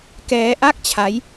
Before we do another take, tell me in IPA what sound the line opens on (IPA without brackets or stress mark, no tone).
k